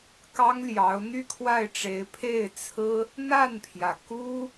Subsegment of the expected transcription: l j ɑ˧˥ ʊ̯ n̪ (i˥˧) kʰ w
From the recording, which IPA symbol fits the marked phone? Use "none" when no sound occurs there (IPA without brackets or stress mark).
y˥˧